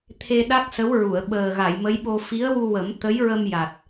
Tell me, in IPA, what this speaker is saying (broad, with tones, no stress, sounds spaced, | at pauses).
t̪ʰ e˧ ɗ a˦˥ k̚ s ə˧˥ w ɹ u˨˩˨ ə̯ ɓ əː˨˩ ɣ a˨˩˨ j m ə˧˥ j ɓ o˧ f i˧˥ ə̯ w u˧ w ə˨˩˦ m t̪ ə˧˥ j ɹ ə˧ m j a˨˩ t̚